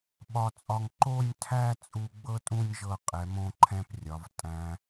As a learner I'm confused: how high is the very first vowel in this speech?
low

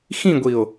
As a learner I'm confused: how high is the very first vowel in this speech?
high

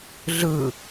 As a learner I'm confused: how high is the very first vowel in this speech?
high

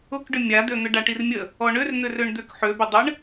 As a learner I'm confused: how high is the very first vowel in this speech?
high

